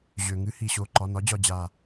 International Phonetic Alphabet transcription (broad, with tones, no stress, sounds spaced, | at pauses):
ʑ ø˩ ŋ ɨ˨˥ h i˩ ɕ o˩˧˩ ǃ ɒ˩˧˩ n ɒ˨˥ d͡ʑ ɒ˧˩ d͡ʑ a˧˩